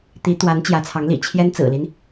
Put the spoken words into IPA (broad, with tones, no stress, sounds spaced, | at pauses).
t̪ i˧˥ t̪ w a˧˥ n t͡ɕ j ä˧˥ t͡sʰ ɑ˧˥ ŋ l ḭ˨˩ t͡ɕʰ j ɛ˥ n t͡s ɹ̩˨˩ l i˦ n